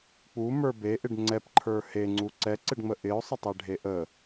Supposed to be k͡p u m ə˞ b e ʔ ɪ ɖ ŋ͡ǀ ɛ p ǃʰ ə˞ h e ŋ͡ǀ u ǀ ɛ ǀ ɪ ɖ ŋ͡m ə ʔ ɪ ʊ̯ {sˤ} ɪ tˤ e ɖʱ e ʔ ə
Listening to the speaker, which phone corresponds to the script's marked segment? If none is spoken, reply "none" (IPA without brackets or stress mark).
sˤ